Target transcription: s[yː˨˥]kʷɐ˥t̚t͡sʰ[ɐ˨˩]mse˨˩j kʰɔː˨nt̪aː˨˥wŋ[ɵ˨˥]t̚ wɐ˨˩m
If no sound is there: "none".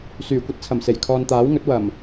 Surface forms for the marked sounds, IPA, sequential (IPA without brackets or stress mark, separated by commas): yː˨˩, ɐ˨˩, ɵ˨˥